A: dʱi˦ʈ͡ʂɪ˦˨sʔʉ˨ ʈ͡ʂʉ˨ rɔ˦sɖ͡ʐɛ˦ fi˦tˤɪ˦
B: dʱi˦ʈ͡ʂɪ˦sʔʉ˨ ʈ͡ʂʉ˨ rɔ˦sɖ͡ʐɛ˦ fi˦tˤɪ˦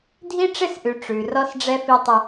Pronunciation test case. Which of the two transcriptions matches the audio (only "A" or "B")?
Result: A